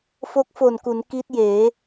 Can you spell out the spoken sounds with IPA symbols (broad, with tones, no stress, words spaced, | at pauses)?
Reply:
fo˦˥k̚fo˨˩nku˩˦n ki˦˥t̚jeː˩˦